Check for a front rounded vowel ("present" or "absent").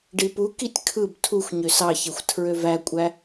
present